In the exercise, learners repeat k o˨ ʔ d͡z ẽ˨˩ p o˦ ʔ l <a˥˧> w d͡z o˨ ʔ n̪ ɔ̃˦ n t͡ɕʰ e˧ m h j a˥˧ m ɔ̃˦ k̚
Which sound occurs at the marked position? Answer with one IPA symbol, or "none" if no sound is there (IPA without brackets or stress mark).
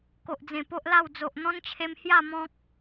a˥˧